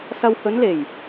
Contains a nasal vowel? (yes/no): no